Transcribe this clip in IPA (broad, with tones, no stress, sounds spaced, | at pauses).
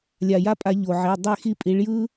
lʲ a˩ j a˦ pʼ a˧˩˧ ʎ o˩ ʕ e˩˧˩ dˤ e˦˨ x i˦ pʼ i˨˦ ɭ j ɯ˦